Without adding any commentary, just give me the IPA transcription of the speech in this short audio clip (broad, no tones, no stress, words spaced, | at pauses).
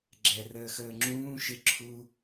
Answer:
ɡ͡ǁɛ rəːxəːŋ͡ǁũː ʃɪ ǁʰu